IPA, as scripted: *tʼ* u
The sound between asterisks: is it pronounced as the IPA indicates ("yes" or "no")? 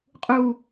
no